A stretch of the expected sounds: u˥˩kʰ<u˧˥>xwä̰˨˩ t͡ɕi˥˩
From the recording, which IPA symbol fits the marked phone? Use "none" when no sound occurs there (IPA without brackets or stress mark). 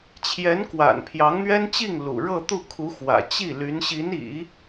u˧˥